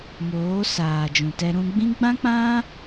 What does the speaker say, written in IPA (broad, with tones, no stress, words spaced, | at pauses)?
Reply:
moː˨˦ saː˨d͡ʒũ˨tɛ˧ ɾũ˧ɡ͡bĩ˦ ɡ͡bã˦k͡pã˦